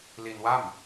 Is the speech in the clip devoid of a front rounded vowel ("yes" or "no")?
yes